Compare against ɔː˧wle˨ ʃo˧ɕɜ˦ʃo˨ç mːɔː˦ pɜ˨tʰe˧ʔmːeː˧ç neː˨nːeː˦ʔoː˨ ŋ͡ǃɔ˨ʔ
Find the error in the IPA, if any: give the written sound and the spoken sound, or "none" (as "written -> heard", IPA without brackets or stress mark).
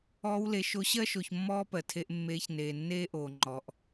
none